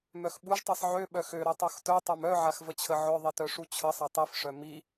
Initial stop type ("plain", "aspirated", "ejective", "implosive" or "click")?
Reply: implosive